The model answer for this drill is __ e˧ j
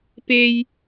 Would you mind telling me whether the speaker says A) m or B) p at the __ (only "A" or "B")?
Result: B